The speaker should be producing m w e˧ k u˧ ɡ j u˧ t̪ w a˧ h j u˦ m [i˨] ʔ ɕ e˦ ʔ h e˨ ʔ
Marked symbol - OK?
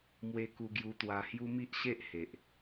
no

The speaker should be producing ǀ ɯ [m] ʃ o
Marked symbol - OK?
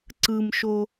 yes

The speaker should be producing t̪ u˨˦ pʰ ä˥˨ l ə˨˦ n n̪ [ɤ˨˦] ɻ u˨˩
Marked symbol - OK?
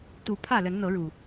yes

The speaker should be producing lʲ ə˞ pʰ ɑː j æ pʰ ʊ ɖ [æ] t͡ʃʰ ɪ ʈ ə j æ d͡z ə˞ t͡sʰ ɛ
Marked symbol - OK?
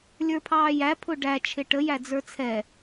yes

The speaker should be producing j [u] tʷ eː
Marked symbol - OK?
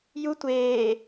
yes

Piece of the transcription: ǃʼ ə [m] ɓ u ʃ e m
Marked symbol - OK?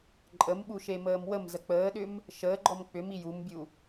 yes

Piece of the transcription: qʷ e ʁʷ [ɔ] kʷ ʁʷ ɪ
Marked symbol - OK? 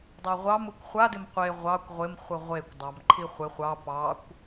no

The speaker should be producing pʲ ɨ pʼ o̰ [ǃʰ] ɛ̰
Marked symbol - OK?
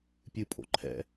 yes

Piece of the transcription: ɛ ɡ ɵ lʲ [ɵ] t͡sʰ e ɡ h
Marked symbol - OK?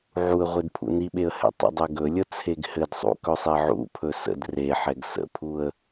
no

